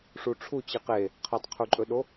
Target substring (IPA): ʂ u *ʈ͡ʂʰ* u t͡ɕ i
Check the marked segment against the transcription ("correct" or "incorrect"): correct